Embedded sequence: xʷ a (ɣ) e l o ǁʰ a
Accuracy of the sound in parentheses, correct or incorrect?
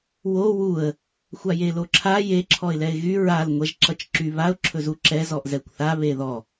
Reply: incorrect: j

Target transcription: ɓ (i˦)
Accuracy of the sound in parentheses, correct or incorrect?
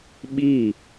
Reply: incorrect: i˦˨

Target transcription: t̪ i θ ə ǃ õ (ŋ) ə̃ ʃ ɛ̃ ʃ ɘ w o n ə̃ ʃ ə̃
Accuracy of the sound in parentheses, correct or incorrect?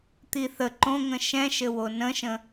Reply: correct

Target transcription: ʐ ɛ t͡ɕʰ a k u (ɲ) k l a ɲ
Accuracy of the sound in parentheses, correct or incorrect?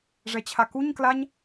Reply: correct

